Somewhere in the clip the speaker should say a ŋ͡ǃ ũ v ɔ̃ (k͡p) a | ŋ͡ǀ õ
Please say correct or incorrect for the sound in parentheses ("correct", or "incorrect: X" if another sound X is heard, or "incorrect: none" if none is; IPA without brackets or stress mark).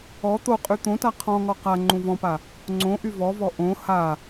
incorrect: p